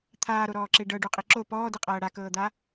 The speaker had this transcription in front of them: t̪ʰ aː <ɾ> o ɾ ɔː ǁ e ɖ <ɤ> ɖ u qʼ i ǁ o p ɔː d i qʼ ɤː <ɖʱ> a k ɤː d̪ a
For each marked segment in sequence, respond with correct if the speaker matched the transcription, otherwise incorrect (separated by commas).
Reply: correct, correct, incorrect